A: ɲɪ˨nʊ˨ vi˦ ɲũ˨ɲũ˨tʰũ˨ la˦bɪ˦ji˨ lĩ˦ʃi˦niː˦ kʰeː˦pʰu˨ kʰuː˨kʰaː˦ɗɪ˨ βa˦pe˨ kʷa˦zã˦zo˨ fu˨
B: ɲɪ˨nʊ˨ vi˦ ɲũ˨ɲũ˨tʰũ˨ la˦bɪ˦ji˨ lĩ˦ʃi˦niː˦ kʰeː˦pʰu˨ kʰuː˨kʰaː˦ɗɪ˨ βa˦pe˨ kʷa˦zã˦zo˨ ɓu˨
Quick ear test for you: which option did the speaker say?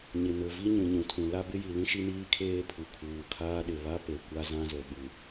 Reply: B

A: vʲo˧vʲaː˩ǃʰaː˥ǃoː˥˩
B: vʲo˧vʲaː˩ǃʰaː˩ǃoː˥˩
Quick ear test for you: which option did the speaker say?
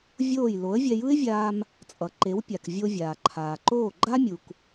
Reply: B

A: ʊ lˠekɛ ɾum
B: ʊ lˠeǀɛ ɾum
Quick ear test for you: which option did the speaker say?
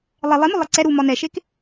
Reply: B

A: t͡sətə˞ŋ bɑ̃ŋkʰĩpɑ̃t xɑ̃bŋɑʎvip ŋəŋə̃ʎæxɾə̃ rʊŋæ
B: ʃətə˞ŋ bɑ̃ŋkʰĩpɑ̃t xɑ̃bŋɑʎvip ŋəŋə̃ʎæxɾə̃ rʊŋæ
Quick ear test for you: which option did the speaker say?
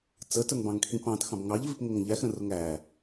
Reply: A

